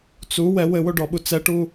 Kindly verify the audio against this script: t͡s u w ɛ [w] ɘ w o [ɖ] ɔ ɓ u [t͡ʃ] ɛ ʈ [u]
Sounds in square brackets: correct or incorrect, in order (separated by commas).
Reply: correct, correct, incorrect, correct